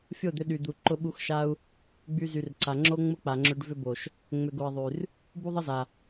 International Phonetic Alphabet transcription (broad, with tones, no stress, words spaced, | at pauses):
fʲo˦˨d̪ʏ˧ɗy˨d̪u˨ ǃʊ˧ɓu˧xʃa˦u̯ | ɡ͡by˧zy˨rǀa˨ŋ͡ǁo˦ ŋ͡mʊ˦k͡pa˨ŋ͡ǁø˧ɖ vʏ˧bo˨ʃ | ŋ͡mʏ˨ɡo˨i̯ ðˤy˨r | bu˦ðˤə˦za˨